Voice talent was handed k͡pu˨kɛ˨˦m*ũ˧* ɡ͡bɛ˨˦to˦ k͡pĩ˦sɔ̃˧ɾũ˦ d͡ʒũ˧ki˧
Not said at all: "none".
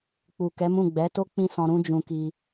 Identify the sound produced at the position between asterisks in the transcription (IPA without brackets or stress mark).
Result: ũ˦˨